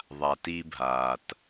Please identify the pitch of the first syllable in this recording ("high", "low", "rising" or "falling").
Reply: low